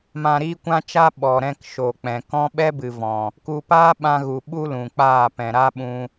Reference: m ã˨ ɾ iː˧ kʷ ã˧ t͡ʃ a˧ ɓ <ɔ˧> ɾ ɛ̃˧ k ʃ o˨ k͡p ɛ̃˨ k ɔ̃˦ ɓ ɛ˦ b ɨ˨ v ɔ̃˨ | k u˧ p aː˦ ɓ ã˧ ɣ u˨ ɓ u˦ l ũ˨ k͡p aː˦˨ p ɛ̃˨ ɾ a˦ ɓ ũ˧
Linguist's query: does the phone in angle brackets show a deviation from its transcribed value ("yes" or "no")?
yes